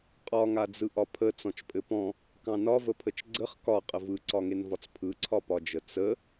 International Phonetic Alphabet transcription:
qʼ ɒ ŋ a d͡z ɯ ʔ ɒ pʰ ə t͡s ɔ̃ t͡ʃ pʼ ɘ p ɔ̃ | k ɑ̃ n ɒ v ə pʰ ə t͡ʃ ɡ͡ǀ ə χ k ɒ qʼ ə v ɯ ǀ ɒ ŋ e n v ɒ t͡s pʰ ɯ ǀʰ ɒ p ɒ d͡ʒ ə t͡s ə

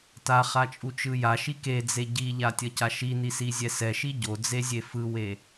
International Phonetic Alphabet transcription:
t a χ a t͡ʃʼ u t͡ʃ ɯ j a ʃ i k e d͡z e ɟ i ʎ a tʲ ʌ c a ʃ i n i s i zʲ ɛ s ɛ ʃ i ɟ o d͡z e zʲ e f ɯ w e

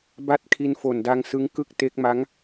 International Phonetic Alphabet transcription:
b a˦˥ t̚ kʰ i˧ n f o˨˩ n d a˧ ŋ s ɯ˦˥ ŋ k ɯ˥˩ k̚ t e˦˥ k̚ m a˦˥ ŋ

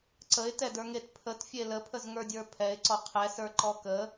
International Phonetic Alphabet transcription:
ǀ ə ɪ̯ t ɛ d ə˞ ŋ e t pʰ ə t fʲ e l ə pʰ ə z ŋ ə˞ dʲ ə˞ pʰ ɛ ɪ̯ ǀ ɔ qʰ ɛ s ə˞ ǃ ɔ k ə

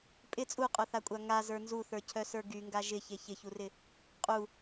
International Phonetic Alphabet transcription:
pʼ ɪ t͡sʼ u qʼ œ θ a kʷʼ a ŋ a z ə˞ n z u θ ə˞ cʰ œ s ə˞ ɡ y ŋ ɡ a ʒ ɪ ç e ç ɪ ç u r ɪ | qʼ u

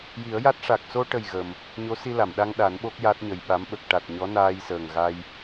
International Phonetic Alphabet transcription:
j i˨˩˦ ə̯ j a˦˥ t̚ ʂ a˨˩ k̚ s o˧ ʈ ə˨˩ j ɣ ə˨˩ m | ɲ o˧˥ s i˧ l a˨˩˨ m ɗ a˧ ŋ ɗ a˨˩˦ n ɓ o˦˥ k̚ j a˦˥ t̚ ɲ ə˨˩ j ɓ a˧˥ m ɓ ə˨˩ k̚ ʈ a˨˩ t̚ ɲ ɔ˧˥ n aː˧ j s əː˨˩ ŋ ɣ a˧ j

